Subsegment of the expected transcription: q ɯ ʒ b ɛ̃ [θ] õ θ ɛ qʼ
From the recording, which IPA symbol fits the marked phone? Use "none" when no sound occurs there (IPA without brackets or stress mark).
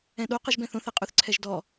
θ